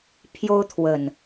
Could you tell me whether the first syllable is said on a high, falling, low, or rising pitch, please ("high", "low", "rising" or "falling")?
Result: high